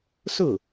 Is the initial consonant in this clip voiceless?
yes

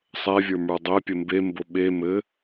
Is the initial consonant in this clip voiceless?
yes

